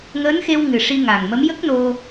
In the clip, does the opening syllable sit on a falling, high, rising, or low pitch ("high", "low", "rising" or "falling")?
rising